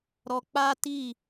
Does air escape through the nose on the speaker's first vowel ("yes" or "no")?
no